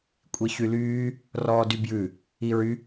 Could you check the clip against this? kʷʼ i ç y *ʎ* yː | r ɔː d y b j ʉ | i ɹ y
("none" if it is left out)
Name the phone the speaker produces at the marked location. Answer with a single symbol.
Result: l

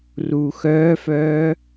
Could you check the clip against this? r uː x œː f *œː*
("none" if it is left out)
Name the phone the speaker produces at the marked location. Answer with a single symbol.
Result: œː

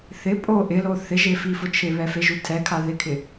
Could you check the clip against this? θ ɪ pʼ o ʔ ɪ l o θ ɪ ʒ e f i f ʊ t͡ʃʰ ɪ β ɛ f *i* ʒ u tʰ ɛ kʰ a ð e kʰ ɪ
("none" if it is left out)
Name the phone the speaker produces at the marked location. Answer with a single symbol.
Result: e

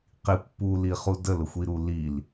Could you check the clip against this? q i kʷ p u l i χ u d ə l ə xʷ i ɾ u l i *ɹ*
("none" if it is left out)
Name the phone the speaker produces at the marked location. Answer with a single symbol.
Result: l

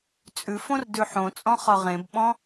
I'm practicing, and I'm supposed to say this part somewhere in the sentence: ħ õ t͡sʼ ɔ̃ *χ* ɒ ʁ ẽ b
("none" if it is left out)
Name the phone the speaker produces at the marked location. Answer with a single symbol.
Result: χ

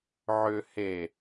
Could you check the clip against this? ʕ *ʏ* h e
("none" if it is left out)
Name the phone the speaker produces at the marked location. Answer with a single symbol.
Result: ʏ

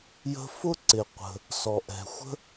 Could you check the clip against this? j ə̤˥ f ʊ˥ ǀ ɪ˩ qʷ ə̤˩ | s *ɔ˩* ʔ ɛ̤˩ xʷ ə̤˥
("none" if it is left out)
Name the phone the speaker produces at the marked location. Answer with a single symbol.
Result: ɔ˩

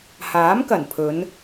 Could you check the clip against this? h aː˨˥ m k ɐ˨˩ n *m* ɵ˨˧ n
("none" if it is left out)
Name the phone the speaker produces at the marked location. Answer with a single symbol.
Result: pʰ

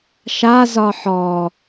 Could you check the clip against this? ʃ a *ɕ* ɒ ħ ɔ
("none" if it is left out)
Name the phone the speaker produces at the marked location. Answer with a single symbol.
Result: z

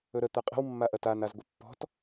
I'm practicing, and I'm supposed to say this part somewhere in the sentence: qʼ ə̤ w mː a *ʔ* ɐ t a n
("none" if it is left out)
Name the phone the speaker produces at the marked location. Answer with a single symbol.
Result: ʔ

